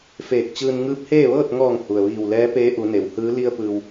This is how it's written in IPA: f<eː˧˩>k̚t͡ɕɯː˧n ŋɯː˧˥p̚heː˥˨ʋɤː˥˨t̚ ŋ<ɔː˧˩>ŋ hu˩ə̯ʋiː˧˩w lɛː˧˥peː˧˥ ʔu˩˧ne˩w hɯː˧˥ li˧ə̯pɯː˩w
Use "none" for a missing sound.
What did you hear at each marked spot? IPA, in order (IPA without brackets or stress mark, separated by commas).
eː˧˩, ɔː˧˩